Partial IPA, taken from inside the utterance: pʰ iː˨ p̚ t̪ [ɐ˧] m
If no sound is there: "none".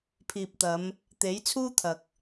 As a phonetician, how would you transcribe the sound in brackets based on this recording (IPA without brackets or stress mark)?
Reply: ɐ˨˧